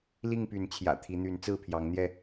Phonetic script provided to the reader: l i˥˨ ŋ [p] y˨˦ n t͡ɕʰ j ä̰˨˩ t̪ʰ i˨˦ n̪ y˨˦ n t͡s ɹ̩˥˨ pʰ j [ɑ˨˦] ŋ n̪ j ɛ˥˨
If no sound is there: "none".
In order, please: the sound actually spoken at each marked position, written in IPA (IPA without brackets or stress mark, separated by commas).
p, ɑ˨˦